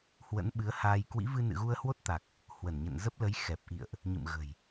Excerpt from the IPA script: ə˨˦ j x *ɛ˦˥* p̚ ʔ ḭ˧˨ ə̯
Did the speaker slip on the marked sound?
yes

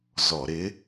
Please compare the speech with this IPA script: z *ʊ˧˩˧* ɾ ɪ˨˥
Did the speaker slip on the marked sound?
yes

